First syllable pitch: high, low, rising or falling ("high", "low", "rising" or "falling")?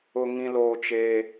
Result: high